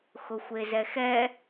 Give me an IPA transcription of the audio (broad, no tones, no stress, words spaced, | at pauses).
xʊxʷezɛxɛ